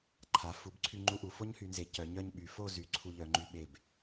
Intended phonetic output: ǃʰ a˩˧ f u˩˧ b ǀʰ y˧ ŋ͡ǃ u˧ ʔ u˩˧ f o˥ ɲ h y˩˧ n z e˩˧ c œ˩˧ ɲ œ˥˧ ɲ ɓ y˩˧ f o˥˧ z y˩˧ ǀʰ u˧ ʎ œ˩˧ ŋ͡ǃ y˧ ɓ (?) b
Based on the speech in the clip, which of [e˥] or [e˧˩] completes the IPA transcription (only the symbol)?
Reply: e˧˩